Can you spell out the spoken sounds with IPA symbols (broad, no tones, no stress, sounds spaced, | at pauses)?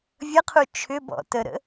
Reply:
vʲ ə qʰ u t͡ʃʰ ʏ b ɔ̰ t ə ɾ ə̰